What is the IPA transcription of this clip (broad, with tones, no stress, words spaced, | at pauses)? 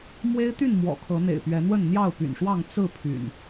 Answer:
mwe˦ɪ̯t̪y˥˨n mwɔ̰˨˩kʰɤ˨˦ n̪ḛ˨˩ɪ̯pɥɛ˨˦n̪wə˥˨n n̪jɑ˥˨ʊ̯py̰˨˩nʂwɑ˥˨ŋ t͡sɹ̩˥˨ pʰy̰˨˩n